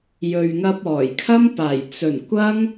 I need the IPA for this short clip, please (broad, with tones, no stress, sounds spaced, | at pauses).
j ɵ˨ ɥ ŋ ɐ˧ p̚ ɔː˨˩ j kʰ ɐ˥ m p aː˨˩ j t͡s ɵ˨˩ n kʷ ɐ˥ ŋ